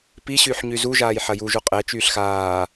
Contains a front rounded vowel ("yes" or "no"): yes